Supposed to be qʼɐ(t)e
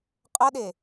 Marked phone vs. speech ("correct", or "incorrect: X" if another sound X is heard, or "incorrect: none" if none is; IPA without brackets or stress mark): incorrect: ɗ